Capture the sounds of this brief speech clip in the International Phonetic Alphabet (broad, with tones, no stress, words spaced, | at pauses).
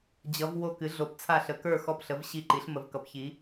d͡ʑʌ˩˧v wo˧˩kɨ˩˧ɮo˩˧pt͡sʰa˧˩ ɬə˩˧kə˞˧˩xɔ˧˩pɬə˩˧v ɕi˧˩ǃi˩˧ɬmə˩˧v kʌ˩˧pçi˩˧